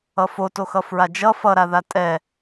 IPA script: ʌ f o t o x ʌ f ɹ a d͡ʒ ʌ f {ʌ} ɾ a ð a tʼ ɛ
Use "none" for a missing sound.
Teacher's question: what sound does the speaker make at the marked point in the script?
ʌ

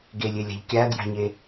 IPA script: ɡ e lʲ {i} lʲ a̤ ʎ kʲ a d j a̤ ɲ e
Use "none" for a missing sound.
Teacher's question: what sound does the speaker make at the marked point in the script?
e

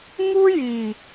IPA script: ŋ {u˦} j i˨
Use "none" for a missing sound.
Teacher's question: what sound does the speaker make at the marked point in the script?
u˦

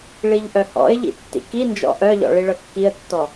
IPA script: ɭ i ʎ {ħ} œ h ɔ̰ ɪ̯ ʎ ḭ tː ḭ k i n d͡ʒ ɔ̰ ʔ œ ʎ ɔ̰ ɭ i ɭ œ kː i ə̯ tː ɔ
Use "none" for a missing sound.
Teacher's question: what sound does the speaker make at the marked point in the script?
ʔ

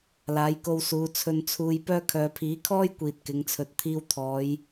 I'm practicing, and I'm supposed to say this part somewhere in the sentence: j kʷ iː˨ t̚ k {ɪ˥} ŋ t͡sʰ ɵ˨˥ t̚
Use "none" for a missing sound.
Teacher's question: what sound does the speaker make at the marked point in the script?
ɪ˨˧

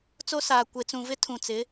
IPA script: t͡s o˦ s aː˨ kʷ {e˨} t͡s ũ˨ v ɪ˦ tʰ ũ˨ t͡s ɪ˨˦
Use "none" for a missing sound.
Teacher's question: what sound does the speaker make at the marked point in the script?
e˨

